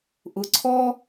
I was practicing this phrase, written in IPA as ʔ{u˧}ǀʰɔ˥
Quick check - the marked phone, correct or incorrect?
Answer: incorrect